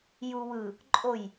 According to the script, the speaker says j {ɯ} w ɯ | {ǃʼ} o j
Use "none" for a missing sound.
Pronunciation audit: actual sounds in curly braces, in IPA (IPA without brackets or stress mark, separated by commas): u, ǃʼ